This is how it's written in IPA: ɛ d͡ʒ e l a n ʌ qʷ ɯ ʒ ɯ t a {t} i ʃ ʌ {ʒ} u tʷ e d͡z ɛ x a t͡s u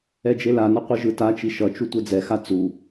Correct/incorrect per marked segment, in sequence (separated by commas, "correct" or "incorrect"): incorrect, incorrect